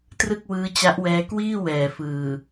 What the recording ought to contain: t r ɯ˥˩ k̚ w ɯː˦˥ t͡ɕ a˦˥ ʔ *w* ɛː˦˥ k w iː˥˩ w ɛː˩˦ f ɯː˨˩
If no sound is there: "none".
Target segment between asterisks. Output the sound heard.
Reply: w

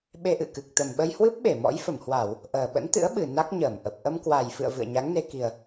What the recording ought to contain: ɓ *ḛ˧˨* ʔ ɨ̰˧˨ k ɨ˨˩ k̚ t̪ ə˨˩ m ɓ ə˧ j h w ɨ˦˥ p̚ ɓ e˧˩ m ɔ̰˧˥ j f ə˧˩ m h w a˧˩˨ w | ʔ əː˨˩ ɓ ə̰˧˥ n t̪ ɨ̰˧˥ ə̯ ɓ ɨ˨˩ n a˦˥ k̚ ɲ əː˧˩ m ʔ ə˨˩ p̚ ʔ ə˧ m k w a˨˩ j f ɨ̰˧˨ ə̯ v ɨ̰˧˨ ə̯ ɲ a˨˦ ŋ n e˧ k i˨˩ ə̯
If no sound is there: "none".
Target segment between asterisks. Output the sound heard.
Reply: e˧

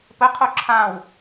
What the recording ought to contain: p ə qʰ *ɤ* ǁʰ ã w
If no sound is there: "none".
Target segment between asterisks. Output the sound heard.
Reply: o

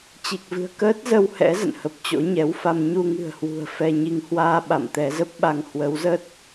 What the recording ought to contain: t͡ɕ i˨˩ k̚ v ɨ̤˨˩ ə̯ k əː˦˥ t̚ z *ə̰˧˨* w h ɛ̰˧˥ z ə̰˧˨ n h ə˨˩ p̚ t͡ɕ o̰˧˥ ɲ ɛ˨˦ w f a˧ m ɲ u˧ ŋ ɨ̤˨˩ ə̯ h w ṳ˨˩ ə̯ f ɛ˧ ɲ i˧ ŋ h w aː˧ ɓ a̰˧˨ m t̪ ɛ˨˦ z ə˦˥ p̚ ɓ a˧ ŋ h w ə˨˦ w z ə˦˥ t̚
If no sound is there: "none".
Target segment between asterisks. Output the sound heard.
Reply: ə˧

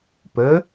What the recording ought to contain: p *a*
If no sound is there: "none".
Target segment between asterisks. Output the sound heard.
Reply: ə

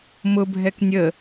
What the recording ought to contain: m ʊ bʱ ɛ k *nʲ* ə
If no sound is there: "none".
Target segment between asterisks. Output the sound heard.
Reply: nʲ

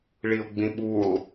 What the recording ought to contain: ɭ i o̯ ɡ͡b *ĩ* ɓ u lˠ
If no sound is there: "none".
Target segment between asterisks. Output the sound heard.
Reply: ĩ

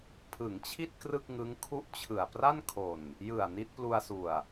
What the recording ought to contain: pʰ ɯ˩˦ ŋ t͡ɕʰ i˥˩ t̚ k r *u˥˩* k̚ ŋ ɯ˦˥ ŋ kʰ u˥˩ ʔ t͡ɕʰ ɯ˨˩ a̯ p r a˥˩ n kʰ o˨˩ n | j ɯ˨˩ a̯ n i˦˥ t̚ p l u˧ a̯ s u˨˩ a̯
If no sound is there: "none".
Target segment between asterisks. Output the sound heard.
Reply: ɯ˥˩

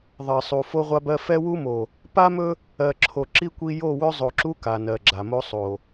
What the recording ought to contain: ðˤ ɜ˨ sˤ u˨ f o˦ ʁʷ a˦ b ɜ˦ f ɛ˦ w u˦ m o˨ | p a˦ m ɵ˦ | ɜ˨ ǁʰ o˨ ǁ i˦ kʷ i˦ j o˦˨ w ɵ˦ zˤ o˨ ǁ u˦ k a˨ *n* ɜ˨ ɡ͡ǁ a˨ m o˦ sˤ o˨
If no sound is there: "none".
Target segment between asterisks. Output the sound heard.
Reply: n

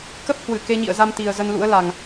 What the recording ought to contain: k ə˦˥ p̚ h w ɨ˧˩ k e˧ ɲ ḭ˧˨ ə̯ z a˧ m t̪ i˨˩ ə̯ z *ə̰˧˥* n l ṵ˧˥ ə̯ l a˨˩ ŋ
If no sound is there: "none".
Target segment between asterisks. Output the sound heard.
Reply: ə˧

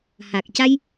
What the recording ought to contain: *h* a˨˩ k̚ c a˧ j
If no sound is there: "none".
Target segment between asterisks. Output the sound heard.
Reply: h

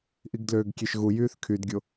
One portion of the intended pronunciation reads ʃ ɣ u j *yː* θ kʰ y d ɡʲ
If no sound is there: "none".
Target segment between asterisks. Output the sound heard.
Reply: yː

